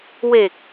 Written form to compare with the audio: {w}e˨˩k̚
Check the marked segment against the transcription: correct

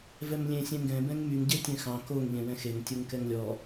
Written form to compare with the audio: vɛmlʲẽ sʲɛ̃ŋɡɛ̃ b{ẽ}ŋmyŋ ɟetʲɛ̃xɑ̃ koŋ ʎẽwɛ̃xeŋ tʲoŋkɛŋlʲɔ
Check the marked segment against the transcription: incorrect: ɛ̃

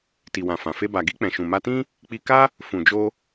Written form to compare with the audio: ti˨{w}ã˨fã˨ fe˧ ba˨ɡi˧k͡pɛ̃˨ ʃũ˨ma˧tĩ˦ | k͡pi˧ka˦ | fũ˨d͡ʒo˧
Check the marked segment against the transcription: correct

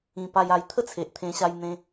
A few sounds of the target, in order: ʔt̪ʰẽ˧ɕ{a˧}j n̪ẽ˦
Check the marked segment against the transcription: correct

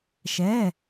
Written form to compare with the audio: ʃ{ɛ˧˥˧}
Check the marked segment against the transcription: correct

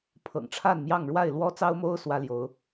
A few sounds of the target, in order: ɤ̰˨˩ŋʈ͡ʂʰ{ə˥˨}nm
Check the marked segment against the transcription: incorrect: a˥˨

